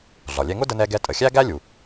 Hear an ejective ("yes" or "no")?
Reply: yes